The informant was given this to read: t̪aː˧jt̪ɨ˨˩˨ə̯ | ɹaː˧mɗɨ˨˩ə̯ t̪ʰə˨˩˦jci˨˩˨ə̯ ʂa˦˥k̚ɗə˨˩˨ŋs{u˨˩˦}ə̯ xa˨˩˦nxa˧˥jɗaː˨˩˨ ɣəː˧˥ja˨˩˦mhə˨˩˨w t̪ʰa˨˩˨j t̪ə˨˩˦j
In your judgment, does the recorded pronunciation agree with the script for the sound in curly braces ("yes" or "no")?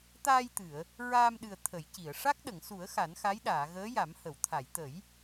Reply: yes